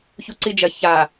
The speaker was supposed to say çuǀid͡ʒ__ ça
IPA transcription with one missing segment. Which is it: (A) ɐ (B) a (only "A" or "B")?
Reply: A